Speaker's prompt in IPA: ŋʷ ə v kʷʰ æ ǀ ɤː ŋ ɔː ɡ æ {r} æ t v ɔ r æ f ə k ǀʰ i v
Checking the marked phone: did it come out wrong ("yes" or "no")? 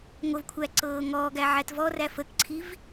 yes